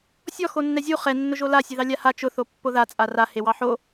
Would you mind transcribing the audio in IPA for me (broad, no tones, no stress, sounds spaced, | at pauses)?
sʲ ɔ x o nː ɛ zʲ u χ ɛ nː ʊ ʒ o l a sʲ e ð ɑ lʲ a h a t͡ʃ ʊ θ o pː o ð a t͡sʼ a r a h e w ɑ ħ o